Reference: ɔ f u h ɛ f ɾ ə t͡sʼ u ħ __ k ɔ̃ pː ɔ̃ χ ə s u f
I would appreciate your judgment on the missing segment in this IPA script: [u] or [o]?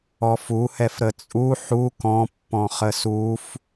u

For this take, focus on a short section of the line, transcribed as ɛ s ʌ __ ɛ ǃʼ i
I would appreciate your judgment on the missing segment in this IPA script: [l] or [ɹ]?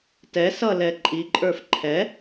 l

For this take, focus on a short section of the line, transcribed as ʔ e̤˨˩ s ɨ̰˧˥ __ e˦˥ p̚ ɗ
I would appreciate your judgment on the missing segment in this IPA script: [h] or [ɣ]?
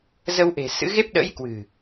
ɣ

